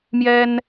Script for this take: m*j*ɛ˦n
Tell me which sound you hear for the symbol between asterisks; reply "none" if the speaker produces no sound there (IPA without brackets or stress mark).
j